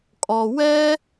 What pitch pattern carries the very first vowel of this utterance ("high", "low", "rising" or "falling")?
low